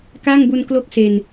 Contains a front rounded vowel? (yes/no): no